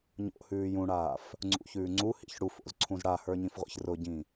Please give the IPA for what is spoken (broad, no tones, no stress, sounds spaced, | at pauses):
ɲ o̰ h ʉː j ũ ɽ aː f | ŋ͡ǀ ṵ ç ʉː ŋ͡ǀ u h ḭ ç ɽ u f o̰ z ǀʰ ũ z ɽ a h ə˞ ɲ ĩ f ʁʷ ḭ ç r ʊ ɟ ĩ